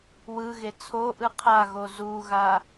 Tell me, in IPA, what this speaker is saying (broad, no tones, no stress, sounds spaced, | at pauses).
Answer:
w ɯ ɣ e t͡sʰ o ʔ ɯ qʰ a ɣ o z u ɣ a